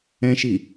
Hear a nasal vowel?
yes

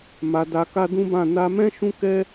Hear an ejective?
no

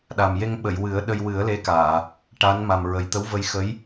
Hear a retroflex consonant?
yes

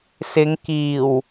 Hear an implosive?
no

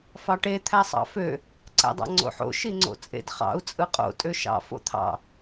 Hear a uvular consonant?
yes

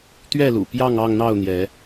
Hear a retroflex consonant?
no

